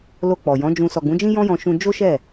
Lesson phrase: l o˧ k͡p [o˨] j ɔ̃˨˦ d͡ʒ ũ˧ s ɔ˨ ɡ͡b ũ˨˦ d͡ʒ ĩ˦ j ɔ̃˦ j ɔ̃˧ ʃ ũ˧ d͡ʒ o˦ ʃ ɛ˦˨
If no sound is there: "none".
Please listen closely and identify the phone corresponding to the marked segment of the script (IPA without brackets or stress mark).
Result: ɔ˨